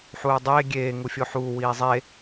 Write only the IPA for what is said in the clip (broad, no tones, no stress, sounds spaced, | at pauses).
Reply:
ħ uː dˤ eː ɡʲ eː ŋ u fʲ o ħ uː w iː zˤ e